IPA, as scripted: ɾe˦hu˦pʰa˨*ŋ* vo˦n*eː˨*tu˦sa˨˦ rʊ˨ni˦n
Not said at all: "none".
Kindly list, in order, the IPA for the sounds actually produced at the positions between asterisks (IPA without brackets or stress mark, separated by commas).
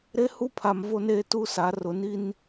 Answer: m, eː˦